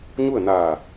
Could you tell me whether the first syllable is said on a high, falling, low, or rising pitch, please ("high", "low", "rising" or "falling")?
falling